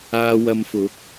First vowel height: low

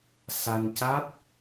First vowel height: low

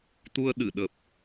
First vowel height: high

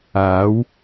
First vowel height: low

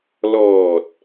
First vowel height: mid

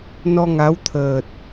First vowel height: mid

